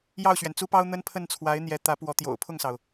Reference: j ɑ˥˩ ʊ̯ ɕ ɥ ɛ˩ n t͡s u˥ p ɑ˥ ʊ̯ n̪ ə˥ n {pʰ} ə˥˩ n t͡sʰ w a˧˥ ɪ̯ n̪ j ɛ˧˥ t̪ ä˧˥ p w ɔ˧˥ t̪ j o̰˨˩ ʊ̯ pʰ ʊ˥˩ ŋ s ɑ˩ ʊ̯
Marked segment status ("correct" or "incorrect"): correct